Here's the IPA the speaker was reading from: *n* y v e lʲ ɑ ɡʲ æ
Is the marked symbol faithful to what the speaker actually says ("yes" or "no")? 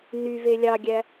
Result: yes